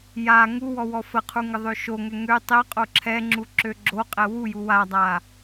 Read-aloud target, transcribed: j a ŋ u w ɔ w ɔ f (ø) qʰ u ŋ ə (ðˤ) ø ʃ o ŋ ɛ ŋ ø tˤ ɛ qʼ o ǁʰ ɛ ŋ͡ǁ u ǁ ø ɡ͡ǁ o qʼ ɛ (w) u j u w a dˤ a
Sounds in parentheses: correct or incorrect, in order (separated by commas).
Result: incorrect, correct, correct